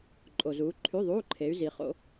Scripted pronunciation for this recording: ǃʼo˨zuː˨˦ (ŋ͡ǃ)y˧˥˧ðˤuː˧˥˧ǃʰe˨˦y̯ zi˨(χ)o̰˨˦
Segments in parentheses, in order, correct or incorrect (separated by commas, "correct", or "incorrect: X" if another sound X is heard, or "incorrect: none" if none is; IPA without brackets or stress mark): incorrect: ǃʰ, correct